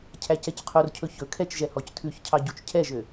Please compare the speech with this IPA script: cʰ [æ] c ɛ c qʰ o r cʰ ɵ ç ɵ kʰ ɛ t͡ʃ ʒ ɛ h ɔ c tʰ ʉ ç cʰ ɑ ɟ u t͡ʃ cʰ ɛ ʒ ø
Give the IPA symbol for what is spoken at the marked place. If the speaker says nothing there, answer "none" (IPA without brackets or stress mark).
æ